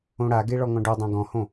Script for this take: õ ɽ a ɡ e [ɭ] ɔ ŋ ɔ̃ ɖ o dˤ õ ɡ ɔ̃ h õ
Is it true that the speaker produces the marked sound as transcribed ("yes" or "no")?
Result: yes